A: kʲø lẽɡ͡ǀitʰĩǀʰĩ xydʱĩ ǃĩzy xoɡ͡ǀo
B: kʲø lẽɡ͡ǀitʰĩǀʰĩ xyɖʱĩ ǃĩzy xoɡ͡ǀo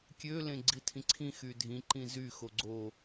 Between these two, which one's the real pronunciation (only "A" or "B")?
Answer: A